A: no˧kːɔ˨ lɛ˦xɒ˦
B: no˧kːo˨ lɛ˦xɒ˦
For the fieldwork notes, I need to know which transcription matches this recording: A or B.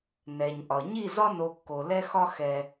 B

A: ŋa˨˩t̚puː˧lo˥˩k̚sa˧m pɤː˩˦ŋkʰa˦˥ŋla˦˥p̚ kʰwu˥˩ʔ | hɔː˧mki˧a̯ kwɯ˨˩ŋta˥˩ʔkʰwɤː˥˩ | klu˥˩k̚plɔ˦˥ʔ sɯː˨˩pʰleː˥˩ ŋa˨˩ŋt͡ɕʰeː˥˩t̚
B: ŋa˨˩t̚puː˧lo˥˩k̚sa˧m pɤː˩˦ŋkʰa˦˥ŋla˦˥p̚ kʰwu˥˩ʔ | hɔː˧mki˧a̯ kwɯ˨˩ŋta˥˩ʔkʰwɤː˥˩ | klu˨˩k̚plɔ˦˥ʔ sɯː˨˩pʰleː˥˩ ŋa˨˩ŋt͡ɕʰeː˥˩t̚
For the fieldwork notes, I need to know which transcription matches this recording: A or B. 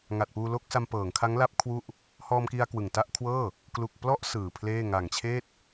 B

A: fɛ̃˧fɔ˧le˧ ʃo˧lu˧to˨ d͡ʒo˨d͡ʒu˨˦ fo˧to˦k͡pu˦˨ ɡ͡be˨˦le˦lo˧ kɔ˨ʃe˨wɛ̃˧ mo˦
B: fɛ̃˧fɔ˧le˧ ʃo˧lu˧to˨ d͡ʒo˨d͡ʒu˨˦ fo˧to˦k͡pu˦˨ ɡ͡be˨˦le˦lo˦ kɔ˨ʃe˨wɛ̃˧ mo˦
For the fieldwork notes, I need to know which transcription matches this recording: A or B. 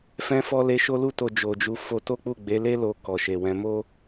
A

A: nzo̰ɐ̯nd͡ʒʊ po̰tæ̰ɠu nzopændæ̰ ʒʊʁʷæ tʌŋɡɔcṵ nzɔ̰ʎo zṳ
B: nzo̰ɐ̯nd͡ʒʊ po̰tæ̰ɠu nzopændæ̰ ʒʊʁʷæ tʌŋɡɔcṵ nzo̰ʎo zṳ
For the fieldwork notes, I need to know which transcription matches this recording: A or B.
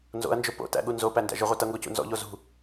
A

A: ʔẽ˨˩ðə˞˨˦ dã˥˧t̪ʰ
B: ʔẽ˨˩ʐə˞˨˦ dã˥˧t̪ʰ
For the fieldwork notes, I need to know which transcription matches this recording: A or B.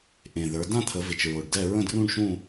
A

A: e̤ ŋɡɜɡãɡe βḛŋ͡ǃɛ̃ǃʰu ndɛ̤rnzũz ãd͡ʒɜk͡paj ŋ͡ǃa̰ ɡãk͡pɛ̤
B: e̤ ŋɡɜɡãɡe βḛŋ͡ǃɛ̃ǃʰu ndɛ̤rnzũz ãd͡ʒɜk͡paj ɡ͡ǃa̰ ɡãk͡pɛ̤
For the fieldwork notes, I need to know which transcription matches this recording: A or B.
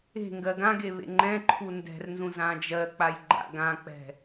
B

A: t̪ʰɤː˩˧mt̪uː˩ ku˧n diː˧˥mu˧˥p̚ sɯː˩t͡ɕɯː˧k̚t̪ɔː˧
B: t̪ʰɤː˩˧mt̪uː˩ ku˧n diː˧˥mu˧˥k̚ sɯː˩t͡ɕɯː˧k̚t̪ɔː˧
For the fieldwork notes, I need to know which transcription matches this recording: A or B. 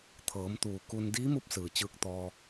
A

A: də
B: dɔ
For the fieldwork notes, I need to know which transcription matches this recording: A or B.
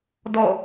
B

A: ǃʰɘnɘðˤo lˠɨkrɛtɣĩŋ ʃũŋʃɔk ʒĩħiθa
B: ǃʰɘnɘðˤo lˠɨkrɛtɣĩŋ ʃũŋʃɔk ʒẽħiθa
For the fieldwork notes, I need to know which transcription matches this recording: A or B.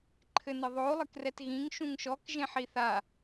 B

